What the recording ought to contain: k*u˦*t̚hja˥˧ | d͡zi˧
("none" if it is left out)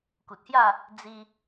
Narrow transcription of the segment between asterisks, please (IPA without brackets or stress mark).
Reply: u˨